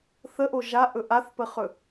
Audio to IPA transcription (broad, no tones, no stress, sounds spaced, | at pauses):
θ ə ʔ o ʒ a ʔ ɵ ʔ a θ p ə χ ɵ